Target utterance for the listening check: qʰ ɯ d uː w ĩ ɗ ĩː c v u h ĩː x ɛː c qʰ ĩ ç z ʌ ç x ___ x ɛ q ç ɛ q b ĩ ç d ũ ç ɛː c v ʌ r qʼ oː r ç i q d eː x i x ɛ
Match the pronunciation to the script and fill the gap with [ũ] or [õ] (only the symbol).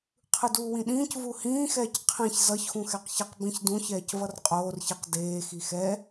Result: ũ